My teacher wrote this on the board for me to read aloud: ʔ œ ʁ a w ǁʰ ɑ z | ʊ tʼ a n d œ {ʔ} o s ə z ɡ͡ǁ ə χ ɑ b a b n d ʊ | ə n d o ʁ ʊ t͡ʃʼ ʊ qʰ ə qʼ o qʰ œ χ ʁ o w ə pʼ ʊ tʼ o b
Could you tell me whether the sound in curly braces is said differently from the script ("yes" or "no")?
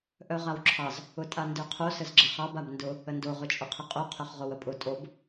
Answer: yes